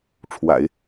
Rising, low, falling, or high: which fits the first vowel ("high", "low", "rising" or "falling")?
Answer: low